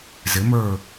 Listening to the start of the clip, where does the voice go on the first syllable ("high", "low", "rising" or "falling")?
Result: rising